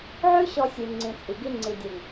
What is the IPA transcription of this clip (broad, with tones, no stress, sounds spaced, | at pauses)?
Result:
ʕ ʉ˦ ɕ ɔ˧ sʲ ʉ˨ ŋ͡ǀ ĩ˨ t͡sʼ i˨ ɡ i˧ ŋ͡ǀ i˨ dʲ ə˞˨ ŋ